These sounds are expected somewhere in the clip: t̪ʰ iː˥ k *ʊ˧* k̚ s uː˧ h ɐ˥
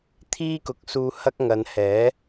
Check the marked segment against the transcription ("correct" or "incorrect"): incorrect